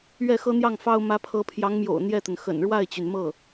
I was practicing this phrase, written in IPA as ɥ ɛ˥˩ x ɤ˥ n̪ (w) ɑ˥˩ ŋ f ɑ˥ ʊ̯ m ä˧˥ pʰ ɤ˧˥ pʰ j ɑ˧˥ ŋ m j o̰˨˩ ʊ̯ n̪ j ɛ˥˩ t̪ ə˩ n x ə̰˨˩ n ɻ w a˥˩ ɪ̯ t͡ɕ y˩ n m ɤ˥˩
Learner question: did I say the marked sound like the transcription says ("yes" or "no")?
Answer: no